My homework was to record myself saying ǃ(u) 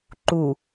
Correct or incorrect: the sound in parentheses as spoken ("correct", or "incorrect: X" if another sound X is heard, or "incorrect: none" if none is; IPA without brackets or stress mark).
correct